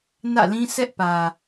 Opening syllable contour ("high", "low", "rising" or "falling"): falling